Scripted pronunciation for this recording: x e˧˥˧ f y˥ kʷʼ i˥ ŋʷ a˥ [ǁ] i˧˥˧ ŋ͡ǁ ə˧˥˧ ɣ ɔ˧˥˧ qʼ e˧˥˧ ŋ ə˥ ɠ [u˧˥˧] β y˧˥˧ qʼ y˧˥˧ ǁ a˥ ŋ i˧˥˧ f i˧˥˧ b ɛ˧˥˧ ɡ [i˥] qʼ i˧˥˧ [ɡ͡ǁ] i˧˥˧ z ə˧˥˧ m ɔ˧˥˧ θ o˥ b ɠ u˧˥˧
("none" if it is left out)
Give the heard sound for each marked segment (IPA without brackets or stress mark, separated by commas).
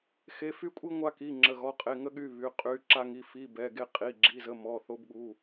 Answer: k, y˧˥˧, e˥, ɡ͡ǁ